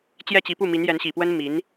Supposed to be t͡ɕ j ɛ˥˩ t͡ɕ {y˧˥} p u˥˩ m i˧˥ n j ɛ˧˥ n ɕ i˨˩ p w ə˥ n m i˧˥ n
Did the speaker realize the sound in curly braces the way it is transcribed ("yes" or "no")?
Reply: no